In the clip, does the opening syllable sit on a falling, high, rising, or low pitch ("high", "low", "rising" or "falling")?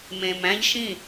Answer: low